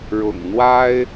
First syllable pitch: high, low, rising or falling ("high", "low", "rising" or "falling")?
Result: low